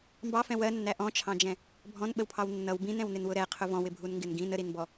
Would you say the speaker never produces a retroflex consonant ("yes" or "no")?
yes